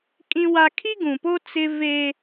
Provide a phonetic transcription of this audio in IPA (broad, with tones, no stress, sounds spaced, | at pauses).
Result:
kʼ ĩ˦ w a˦ kʰ i˦ ɡ ũ˨ p o˦ t͡s ɪ˦ v e˦